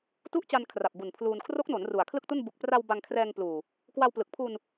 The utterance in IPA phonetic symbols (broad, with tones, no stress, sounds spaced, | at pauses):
t u˥˩ ʔ t͡ɕ a˧ n kʰ r a˨˩ p̚ b u˨˩ n pʰ l uː˧ n kʰ r o˦˥ k̚ n o˩˦ n r u˨˩ a̯ kʰ l ɯ˥˩ k̚ t u˥˩ n b u˨˩ k̚ p r a˧ w b a˧ ŋ kʰ r ɛː˧ ŋ p l uː˨˩ | k w a˧ w p l ɯ˨˩ k̚ pʰ u˧ n